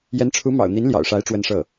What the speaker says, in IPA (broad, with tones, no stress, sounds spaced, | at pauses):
j ɛ˧˥ n ʈ͡ʂʰ u˧˥ m ɑ̰˨˩ ʊ̯ n̪ i˧˥ n l j ɑ̰˨˩ ʊ̯ ʂ a˧˥ ɪ̯ ʈ͡ʂ w ə˥ n ʂ ɤ˥˩